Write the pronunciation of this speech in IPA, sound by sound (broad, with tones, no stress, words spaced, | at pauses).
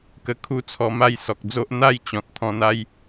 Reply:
kə˧kʰu˦ t͡sʰɔ˧ma˥˧jsɔ˨k̚d͡zo˦ʔ n̪a˥˧j t͡ɕɔ̃˨t̚t̪ʰɔ̃˧ n̪a˦j